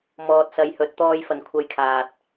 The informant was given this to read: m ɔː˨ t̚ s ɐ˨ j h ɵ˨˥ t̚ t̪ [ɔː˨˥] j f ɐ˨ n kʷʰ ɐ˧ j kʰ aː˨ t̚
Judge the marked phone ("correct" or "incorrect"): incorrect